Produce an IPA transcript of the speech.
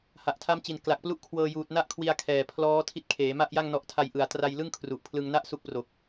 h a˨˩ ʔ tʰ a˦˥ m t͡ɕ i˨˩ n k l a˨˩ k̚ p l u˥˩ ʔ kʰ w ɤː˧ j uː˨˩ t̚ n a˦˥ ʔ kʰ w i˧ a̯ kʰ ɛː˨˩ pʰ l ɔː˦˥ tʰ i˦˥ t̚ kʰ eː˩˦ m a˥˩ ʔ j a˥˩ ŋ n ɔ˦˥ ʔ tʰ a˧ j ʔ ɯ˨˩ a̯ t r a˧ j l ɯ˥˩ ŋ kʰ r u˨˩ ʔ pʰ l ɯ˧ ŋ n a˥˩ ʔ s u˦˥ k̚ p r o˨˩ k̚

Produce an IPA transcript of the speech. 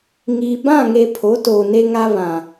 ŋ i˨ b ã˦˨ ŋ e˨ pʰ o˨˦ t oː˨ n e˦ ŋ a˦ β ã˨

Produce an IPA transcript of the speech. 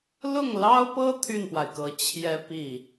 l ʊ˥˩ ŋ l ɑ˥ ʊ̯ p ɤ˥ t̪ʰ y˥˩ n p w a˩ ɪ̯ k ɤ˨˩ t͡ɕʰ j ɛ˥ p i˥˩

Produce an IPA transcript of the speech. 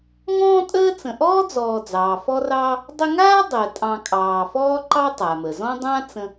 ŋ ɔ̃ː˥ tʼ əː˥ t͡s ə̃˨ ʔ ɔː˥ d͡z ɔː˨ d͡z ɑː˩ f ɔ˦ r ɑː˦ | dˤ ə˦ ŋ aː˥ dˤ əː˩ tʼ ɑ̃˨ kʼ ɑː˨ f ɔː˥ ǃ ɑ˥ tˤ a˩ m ə˩ z ɔ̃˥ dˤ ã˥ t͡s ə̃˦

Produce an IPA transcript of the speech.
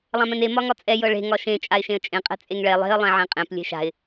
lˠ ã m ɛ̃ n e m ɒ ŋ ɒ t͡sʼ ɛ j ɤ ɭ e̤ ŋ ɒ ʃ ẽ t͡ʃʼ a ɪ̯ ʃ ẽ ə̯ t͡ʃʼ ẽ qʼ ɛ̤ t͡sʼ e ŋ ɭ ɛ lˠ e̤ ə̯ lˠ ɛ̃ ʕ ẽ qʼ ẽ p lʲ e̤ ʃ a̤ ɪ̯

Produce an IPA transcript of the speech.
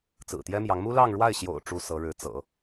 t͡s ɹ̩˨˩ t̪ j ɛ˥ m j ɑ˧˥ ŋ m u˥ l ɑ˥˧ ŋ ɻ w a˥˩ ɪ̯ ɕ j o̰˨˩ ʊ̯ ʈ͡ʂ u˥ s ɤ˧˥ ɻ ɻ̩˧˥ t͡s ɤ̰˨˩˦

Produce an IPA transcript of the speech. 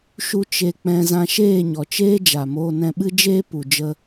ʃ u˧ t͡ʃ e˧ k͡p ɛ̃˧ z ã˧ ʃ eː˦˨ ɲ ɔ˨ t͡ʃ eː˦ d͡ʒ a˨ m oː˧ n ɛ̃˧ ɓ ɨ˦ d͡ʒ eː˦ p u˨ d͡ʒ ə˧

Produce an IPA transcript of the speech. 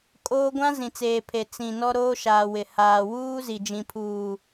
kʼ oː˦ ɡʷ ã˦ z ĩ˨ t͡s eː˨ pʰ e˨ t͡s ĩ˨ n ɔ˦ ɾ oː˦ ʃ aː˨ w ɪ˨ h aː˨ w uː˦ z i˨ d͡ʒ ĩ˨ pʰ uː˨

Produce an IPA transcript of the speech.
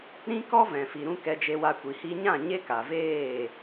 ɾ ĩ˦ k ɔ˦ v ɛ̃˨ f i˨ ɾ ũ˦ k ɛ˧ d͡ʒ e˧ w a˧ kʷ i˨ h i˧ ɲ ã˦˨ ɲ e˦ k a˨ v eː˦˨

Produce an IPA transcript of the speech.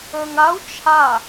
ə˞ ŋ a u̯ t͡ʃʰ a

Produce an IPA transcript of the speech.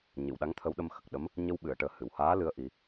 ɲ ɨ˨˩˨ w ɗ a˧˥ ŋ t̪ʰ ə˧˥ w ɗ ə˧ m x ə˨˩ k̚ ɗ ə˧˥ m | ɲ ə˧ w ɓ ɨ˨˩˨ ə̯ ʈ əː˨˩ h ɨ˨˩˨ w h aː˧˥ l ɨ˧˥ ə̯ ʔ i˨˩˦

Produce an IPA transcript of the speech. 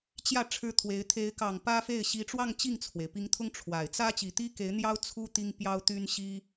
t͡ɕ j ä˥˩ ʈ͡ʂʰ ɻ̩˥ t̪ʰ w e˧˥ ɪ̯ t̪ʰ e˧˥ ɪ̯ k ɑ˨˩ ŋ p ä˥ f e˥˩ ɪ̯ ɕ i˧˥ ʈ͡ʂ w ɑ˥˧ ŋ t͡ɕ i˥˩ ŋ t͡sʰ w e˩ ɪ̯ p i˧˥ ŋ t̪ʰ ʊ˥ ŋ ʈ͡ʂʰ w a˨˩ ɪ̯ t͡s ä˥ t͡ɕ i˨˩ t̪ i˥ k e˧˥ ɪ̯ n̪ j ɑ˥ ʊ̯ t͡sʰ u˥ t̪ i˥ ŋ p j ɑ˥ ʊ̯ t̪ y˥ n ɕ i˥

